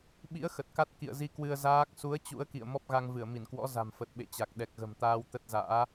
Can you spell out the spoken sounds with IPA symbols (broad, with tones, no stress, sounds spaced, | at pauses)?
ɓ ḭ˧˥ ə̯ x ə˨˩ t̚ k a˦˥ t̚ k ḭ˧˨ ə̯ z i˧ k w ɨ˧ ə̯ z aː˦˥ k̚ s u˨˦ ə̯ t͡ɕ ṵ˧˥ ə̯ k ḭ˧˨ ə̯ m ɔ˦˥ p̚ ɣ a˧ ŋ v ɨ˧˩ ə̯ m i˧˩ n k w ɔ̰˧˥ z a̤˨˩ m f ə˨˩ t̚ ɓ ḛ˧˨ t͡ɕ a˨˩ k̚ ɗ ɛ˨˩ k̚ ɣ ə̤˨˩ m t̪ aː˧ w t̪ ə˦˥ t̚ z a̰ː˧˥